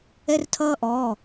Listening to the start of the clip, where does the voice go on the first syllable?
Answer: high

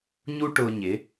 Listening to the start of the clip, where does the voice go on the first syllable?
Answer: high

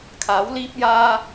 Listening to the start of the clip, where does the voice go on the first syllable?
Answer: rising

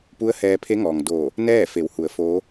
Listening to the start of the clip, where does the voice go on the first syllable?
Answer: rising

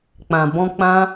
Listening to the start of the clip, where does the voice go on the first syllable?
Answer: low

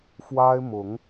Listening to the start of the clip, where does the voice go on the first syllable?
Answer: high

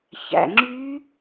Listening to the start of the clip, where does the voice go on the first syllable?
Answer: low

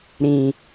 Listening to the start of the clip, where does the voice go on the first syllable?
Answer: low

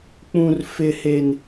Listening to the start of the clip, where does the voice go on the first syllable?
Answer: high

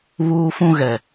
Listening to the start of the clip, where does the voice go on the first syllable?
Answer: high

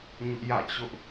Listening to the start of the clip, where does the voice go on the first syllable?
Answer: high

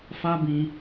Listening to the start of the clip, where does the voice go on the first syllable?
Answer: high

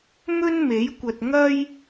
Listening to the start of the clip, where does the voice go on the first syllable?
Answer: high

